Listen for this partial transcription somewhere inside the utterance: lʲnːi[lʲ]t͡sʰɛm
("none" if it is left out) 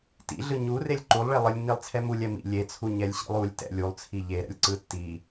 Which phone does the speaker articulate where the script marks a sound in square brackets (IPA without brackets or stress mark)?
lˠ